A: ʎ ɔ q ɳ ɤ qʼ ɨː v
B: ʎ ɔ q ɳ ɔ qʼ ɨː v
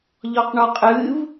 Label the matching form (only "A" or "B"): B